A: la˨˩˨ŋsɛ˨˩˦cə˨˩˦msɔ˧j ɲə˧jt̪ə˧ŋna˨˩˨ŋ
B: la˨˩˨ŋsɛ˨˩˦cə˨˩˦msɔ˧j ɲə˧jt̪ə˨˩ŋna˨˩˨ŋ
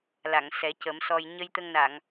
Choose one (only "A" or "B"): A